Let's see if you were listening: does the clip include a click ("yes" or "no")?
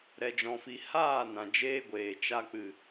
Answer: no